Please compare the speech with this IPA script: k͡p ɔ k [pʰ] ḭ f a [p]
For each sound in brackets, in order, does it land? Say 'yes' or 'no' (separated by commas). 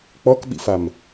no, no